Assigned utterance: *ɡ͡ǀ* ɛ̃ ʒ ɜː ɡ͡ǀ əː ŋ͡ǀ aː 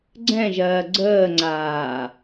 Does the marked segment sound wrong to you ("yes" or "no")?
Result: no